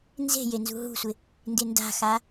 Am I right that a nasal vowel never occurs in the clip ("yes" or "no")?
yes